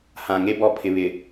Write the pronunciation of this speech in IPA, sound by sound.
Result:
h ã˨ ŋ e˦ b ɔ˨ pʰ ɪ˨ β ɪ˨

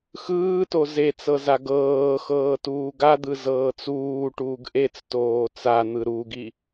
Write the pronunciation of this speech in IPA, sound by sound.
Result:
x ɯː t o z e t͡s ɤ z a ɡ ɤː x ɤː t uː ɡ a d̪ ɯ z ɤː t͡s uː ʈ uː ɡ ʔ e t͡s t oː t͡s a n̪ ɯ ɾ u ɡ i

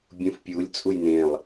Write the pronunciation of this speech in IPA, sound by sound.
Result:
bʲ ũ f pʲ u lʲ t͡sʼ u j n ẽ lˠ

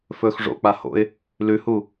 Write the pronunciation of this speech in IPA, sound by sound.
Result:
f ɵː x ʐ o̰ k͡p a h o̰ ɪ̯ | l ʉ h u

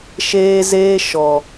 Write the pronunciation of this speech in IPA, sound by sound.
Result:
ʃ eː˦ z eː˦ ʃ ɔ˨

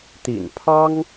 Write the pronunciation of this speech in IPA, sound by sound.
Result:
t̪ ḭ˨˩ n pʰ ɑ˥ ŋ

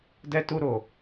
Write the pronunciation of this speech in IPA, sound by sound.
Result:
d ɛ˧ t u˧ ɾ o˨

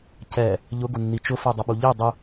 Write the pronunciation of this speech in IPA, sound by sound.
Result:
c ɛ | ʎ ʊ ɡ ʊ nː i t͡ʃ ʊ f ɛ dˤ ʊ ɓ u ʎ i dˤ ʊ

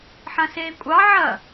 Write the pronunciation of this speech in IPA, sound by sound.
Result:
ħ ɐ̃ s eː kʷʼ ɑ ʕ ɐ

